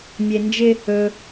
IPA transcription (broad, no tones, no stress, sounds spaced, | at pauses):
mʲ e n d͡ʒ ɪ | ɵ